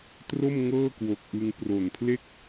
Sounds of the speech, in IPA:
tro˥˩m ŋɤː˥˩kwo˨˩k̚ʔɯ˧ŋ pro˨˩npʰle˥˩k̚

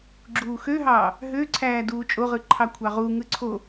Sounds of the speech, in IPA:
ɡ͡ǁuːxøɦɑː | ɦø ǀʰæːduːt͡ʃʼoʁɯ ǃʰɑkʷʰɑʁuŋɯ ǀʰo

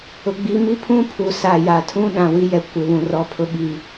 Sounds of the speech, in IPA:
ʊ˨ɡ͡bi˨˦mi˦ pʰũ˦pʰu˨ sa˨ja˨tʰũ˦ ɗã˨wi˦jɛ˨ kʷɪ˨βũ˨ rɔ˦pʰʊ˦ɓi˨

